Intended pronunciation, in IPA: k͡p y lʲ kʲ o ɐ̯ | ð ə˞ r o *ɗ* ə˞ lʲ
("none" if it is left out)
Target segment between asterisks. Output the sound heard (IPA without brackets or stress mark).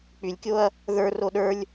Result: ɗ